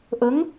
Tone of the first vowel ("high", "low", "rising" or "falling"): rising